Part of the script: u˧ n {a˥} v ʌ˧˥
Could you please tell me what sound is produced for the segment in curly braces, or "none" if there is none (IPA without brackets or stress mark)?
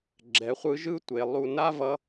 a˥